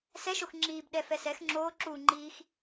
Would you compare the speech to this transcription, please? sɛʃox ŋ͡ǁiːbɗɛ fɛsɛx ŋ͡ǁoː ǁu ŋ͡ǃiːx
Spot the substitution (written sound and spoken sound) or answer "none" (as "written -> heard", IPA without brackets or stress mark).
none